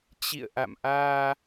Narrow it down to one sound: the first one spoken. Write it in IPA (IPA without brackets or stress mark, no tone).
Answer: t͡ɕ